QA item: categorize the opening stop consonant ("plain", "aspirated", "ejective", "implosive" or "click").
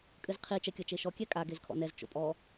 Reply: ejective